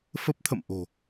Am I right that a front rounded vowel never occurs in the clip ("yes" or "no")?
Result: yes